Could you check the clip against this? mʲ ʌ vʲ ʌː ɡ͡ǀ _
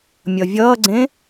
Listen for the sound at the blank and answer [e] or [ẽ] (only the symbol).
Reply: ẽ